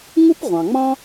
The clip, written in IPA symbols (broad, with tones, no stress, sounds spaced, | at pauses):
ŋ u˥ p ʁʷ ɑ̃˩ ŋ͡m ɑ̃˥